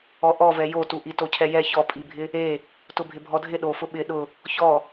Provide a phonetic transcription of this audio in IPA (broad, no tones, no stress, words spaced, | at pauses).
ɔʔɔvɛ jotuʔi tocʰɛjɛ çɔpʼibʱɪ | e | tʊbʱɪbʱɔdʱɪ ɗofʊ ɓɪ ɗʊ | çɔ